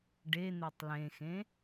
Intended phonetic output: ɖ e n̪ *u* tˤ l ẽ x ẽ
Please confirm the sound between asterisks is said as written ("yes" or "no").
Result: yes